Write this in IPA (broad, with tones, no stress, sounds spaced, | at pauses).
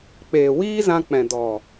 k͡p eː˨ w iː˦ z ã˧ k͡p ɛ̃˨ d ɔ˨